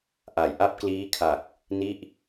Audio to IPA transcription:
ʔa˨˩j ʔa˥˩p̚kliː˦˥kʰa˨˩k̚ | ni˥˩ʔ

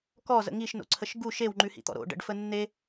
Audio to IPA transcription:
kɔzə̰ ŋiʃno̰ǀʰəʃ ɡu ʃewŋ͡ǃʉhḭt̪ɔ̰ ɾo̰ɖə̰ɖfə nːe

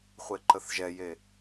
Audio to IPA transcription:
χʷeǃəθʒɛje

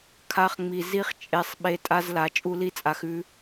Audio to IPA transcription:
kʰa˧χŋ͡mi˨ zi˦χt͡ʃʼe˧sˤɓe˧ tʼa˧zla˨ t͡ʃʼu˦li˦t͡sʼa˧x ʉ˦

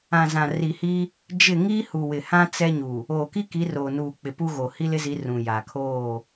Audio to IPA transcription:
ã˨zã˨ri˨hi˦ | d͡ʒɪ˦˨ ŋiː˦hu˨ wɪ˨hã˦ t͡sɛ˦ɲu˨ | oː˨ki˦ki˨˦ roː˨nuː˨ k͡pɪ˨pu˦ɣo˨ hi˦lɪ˦zi˨˦ rũ˨jaː˨ kʰoː˦˨

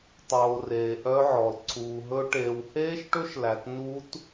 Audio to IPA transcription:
tˤoː˨ reː˨ʔœ˦˥ʕɔ˨l ǀʰuː˨ɦɵ˦˥ ʈeː˨wheː˦˥ʃʈɵ˦˥ʃlæ˨t nu˦˥t

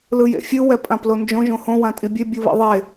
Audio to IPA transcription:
lɯjḛfʲɯ wɛpʼãplond͡ʒõ ʒõhõ wãtʼibʲe bʲɯβḭðˤe

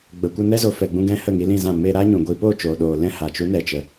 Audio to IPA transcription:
ɡ͡bə˨kʷə˧ nɛ˦zo˨˦ fɛ˨ɡ͡bũ˧ɡɛ̃˧ hə˦˨ŋi˧lĩ˦˨zã˦˨ me˧ ɾaː˦ɲũ˨ɡʷi˧ poː˦˨t͡ʃoː˨ɗoː˨ lɛ̃˦ha˨ t͡ʃu˨˦nɛ˨t͡ʃə˨

